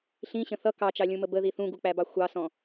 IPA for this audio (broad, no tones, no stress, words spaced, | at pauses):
ɬĩɕə̃ θʌ kɑt͡ʃɑlʲũmə bəði θũɡuk͡pæbɑ xʷɑsɔ̃